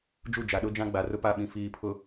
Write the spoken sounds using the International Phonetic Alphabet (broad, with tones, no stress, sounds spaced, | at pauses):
d͡ʒ u˦˨ d͡ʒ a˨ ɗ ʊ˦ d͡ʒ ã˦ ɡ͡b a˨ r ʊ˦ p a˦˨ ɓ ĩ˨ f iː˨ pʰ ʊ˨